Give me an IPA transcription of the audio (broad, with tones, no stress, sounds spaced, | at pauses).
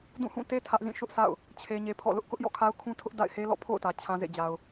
d ũ˦˨ h ũ˦˨ t e˦ tʰ ä˦ ʔ z ĩ˦˨ ʃ ʊ˦ ʔ s a̰˦˨ ʊ̯ | t͡ɕʰ e˦ ɲ e˦ pʰ ɔ̰˦˨ l ʊ˦ ʔ k ʊ˦ ʔ j ɔ̰˦˨ kʰ a˦ ʊ̯ kʰ ũ˦ tʰ ʊ˦ ʔ d a̰˦˨ ɪ̯ h e˦ l ɔ̰˦˨ pʰ o̰˦˨ ʊ̯ t ä˨ t͡ɕʰ ã˦ z ḛ˦˨ d͡ʑ a˨ ʊ̯